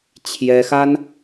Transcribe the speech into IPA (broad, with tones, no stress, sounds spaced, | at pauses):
t͡ɕʰ j ɛ˥ x a˥ n